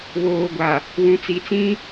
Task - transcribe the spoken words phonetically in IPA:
βoː˨ɡʷa˨ | wũ˨t͡si˨t͡sĩ˦

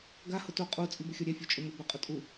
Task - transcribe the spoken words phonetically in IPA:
ɡa hʊto qʼu t͡sʼibʊxʲɔɾʲɛ fʲot͡ʃʼʊmʊ bɛqʼʊtʼu

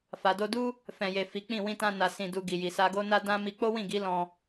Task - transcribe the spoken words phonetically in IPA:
fa˨do˧du˦ | fɛ̃˨je˨ fi˨˦k͡pĩ˦˨ wĩ˧tã˧ na˧sĩ˧ du˧ɡi˨ji˨ sa˧ɡo˦na˦ dã˦ mi˧k͡po˦wĩ˦˨ɡi˨˦ lɔ̃˧

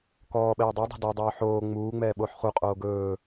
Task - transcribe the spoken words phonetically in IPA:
kɔːɓɛː dˤodˤo̤ dɔdˤɵː ħoː ŋ͡muː ŋ͡mɛːɓoːħχu qʼoːɡɵː

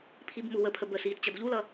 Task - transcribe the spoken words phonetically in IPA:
pʰibmuwəpʰə bə siːtt͡ɕʌdʎulʌ

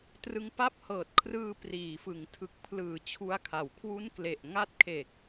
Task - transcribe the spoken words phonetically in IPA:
trɯ˧ŋpa˦˥p̚hɤː˨˩t̚kʰrɯː˧ priː˩˦fɯ˩˦ŋ tʰɯ˨˩k̚pʰlɯː˩˦ t͡ɕʰu˦˥a̯kʰa˩˦w kʰwu˦˥nkle˨˩ʔ ŋa˦˥t̚kʰe˨˩k̚

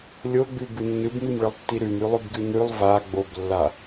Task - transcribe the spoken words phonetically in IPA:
lʲoɡ͡bʉbɨ nːɨbmimɭɨlˠtːi ɾʉmʉlˠʉbɡʉ nʉlˠ va ɡ͡boblːa

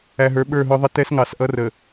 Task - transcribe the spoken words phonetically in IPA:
æ˨ɦə˞˨˦ ɓə˞˦˨ɦʊ˦ðˤɪ˦ tɛ˦s ŋɑ˨sʔʌ˦ rə˨

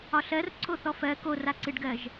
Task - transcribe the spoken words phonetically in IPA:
ɒɬɜr ǀʰoθɔfɜ koraǀɨɖɡɜʒ

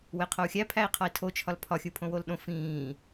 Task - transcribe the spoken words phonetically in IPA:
weqʰou̯xʲæ pʰæi̯qʰɒi̯tʰo t͡ʃʰɒlpʰɒxʲupʰõ wolɗõ fĩː

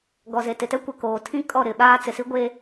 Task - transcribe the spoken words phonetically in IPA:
ɡɔ˨ ze˨tɪ˨tɛ˦kʷɛ˨ koː˨tʰĩ˦kʼɔ˦˨ ɾɪ˨˦ ɓaː˦t͡sɪ˨si˦ ɡʷe˦

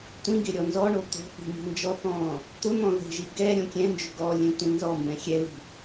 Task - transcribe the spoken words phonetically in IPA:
tʷĩɡɪ ɾʲɔnzɔɳo t̪o̤θi̤ mi̤nd͡ʒɔθɔ̃ː | t̪ʊn̪ɔ̃ ðe̤ʒi ɡɛɾʲõ kʲɛ̃nd͡ʒʏ ɡɔ lʲẽtʷĩnzɔmbɛ̃ xʲɛli̤

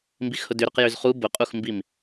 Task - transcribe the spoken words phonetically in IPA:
mbixhʊdʏɾʊq jʏzχu bʊqʼuxmbim

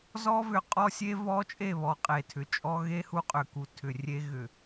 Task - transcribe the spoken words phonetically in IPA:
zɔ˦vʏ˨qʼɔ˦sʲe˦ vɔ˦t͡ʃʼe˦˨βɔ˨ qʼe˨tʰʏ˨t͡ʃʼɔ˦ ɣe˦hu˦ qʼʏ˨ku˨tʰʏ˨ rʲe˦ɣʏ˨

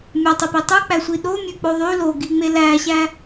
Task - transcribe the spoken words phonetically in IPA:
mʲɑtˤepi tˤɯk͡pæsʷi ɗomʲøk͡po ðˤy loɡiŋ͡me læɕæ

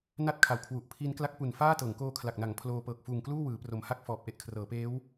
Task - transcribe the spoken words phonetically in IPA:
na˥˩t̚kʰa˨˩w kʰwu˨˩ʔpʰi˦˥n kla˦˥k̚pu˨˩n faː˥˩ tɤː˩˦ŋkoː˧kʰla˨˩k̚na˩˦ŋ pʰloː˧ pɤː˨˩k̚fuː˨˩ŋkluː˥˩ wɯː˩˦pro˩˦mha˥˩k̚ fɔː˨˩p̚ ʔe˥˩ʔkʰrɤː˩˦ peː˦˥w

